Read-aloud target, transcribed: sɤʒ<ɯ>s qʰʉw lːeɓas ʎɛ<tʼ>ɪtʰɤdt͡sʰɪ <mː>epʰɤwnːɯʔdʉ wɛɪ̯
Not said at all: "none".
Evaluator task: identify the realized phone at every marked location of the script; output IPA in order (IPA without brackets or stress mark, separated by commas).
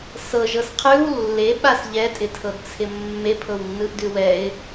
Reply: ɤ, tʼ, mː